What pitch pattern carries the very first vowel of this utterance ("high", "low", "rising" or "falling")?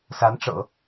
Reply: rising